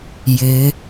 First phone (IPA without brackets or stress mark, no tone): j